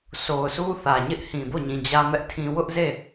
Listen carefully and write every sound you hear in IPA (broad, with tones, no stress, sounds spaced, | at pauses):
sʰ o˨ ʊ̯ sʰ u˦ θ ä˨ ɲ ɪ˦ ʔ h ĩ˨ b o˦˨ ɲ ĩ˨ d͡ʑ ä˦ m ɛ˦ ʔ tʰ ĩ˦ w ʊ˦ ʔ z e˦˨